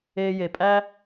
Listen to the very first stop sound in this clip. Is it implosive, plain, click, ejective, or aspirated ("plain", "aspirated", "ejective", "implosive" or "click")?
ejective